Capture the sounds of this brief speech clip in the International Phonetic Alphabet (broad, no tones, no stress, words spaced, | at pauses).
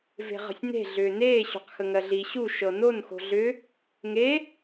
ve̤ʁə̤sʲne̤ ɮʏːneː ɕo̤qxəŋɜɮi ɕu ʃɤnon xo̤ɮʏ | ŋe